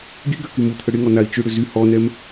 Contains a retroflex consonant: yes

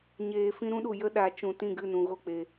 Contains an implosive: yes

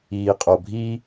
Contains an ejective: yes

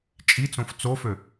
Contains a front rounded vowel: yes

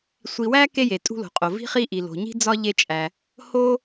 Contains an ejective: yes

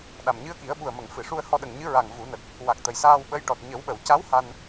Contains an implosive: yes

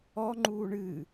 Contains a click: yes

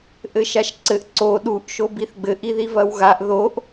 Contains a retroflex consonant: no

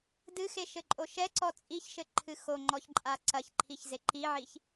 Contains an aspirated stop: yes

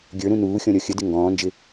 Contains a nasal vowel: yes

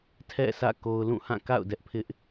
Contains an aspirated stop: yes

